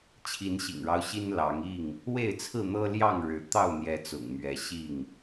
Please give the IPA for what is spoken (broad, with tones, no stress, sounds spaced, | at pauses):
t͡ɕʰ i˨˦ n ɕ ḭ˨˩ ŋ ɻ ɑ˦ ʊ̯ ɕ i˦ n l ɑ˨˦ ŋ i˥˨ ŋ | w e˥˨ ɪ̯ t͡sʰ ɹ̩˥˨ n̪ ɤ˦ l j ɑ˥˨ ŋ ɻ ɻ̩˨˦ t̪ ɑ˥˨ ʊ̯ n̪ j ɛ˨˦ t͡s ʊ̰˨˩ ŋ m ɥ ɛ˨˦ ɕ i˥˨ ŋ